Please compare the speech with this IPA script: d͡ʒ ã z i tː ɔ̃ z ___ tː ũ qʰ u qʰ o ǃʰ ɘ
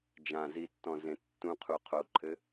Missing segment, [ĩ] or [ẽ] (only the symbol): ẽ